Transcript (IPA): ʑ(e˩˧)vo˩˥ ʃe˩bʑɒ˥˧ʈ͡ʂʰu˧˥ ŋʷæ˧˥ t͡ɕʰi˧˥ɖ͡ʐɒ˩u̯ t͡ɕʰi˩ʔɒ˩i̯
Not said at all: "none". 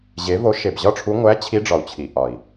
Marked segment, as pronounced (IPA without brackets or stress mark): e˩˧